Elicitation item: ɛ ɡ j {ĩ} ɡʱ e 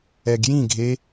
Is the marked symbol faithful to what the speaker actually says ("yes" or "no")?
yes